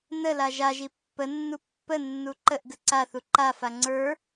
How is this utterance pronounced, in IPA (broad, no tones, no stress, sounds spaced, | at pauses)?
n ə l a ʒ a ʒ i pː ə nː u pː ə nː u ǃ ə ʔ ɡ ə ǀ a θ u ǃ a f a ŋ͡ǀ ə˞